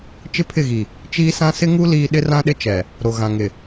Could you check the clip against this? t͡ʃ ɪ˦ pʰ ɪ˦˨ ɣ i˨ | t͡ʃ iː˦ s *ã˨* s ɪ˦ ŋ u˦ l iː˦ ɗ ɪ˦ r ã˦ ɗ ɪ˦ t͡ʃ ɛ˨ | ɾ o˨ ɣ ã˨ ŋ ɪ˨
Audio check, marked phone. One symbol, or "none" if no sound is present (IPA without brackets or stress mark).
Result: ã˦